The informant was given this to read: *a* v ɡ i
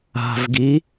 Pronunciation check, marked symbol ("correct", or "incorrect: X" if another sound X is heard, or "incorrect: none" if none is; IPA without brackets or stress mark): incorrect: a̤